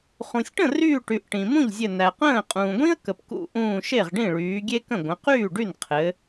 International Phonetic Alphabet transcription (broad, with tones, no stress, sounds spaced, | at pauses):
χ ũ˩ sʲ ʈ ə̃˥˩ r yː˧˩ ʈ y˩ ʔ ʈ ĩ˩ m ũ˥˩ ʎ zʲ ɘ˧˩ n æ˩ q ə̃ː˥˩ qʼ ũː˩ ɡʷ ĩ˥ ə̯ k ə˩ p k ṵ˧˩ ʔ ũː˧˩ ʃ e˥˩ ʁ ɖ ĩ˥˩ ɭ yː˩˧ ɡʲ e˥ k ə̃˥˩ ɡʷ ə̃˩˧ q yː˥˩ ɖ y˥˩ n qʰ ɘ˩˧